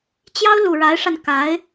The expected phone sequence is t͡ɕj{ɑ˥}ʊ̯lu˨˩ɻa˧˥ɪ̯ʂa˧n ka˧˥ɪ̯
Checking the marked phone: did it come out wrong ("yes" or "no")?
no